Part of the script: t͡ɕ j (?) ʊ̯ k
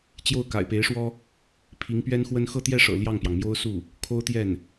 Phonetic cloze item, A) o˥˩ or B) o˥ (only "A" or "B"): A